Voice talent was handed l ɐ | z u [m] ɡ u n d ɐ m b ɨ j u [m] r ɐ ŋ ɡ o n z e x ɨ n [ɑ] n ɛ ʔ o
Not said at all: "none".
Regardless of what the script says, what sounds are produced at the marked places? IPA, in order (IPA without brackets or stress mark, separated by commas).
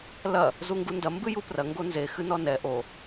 ŋ, p, ɔ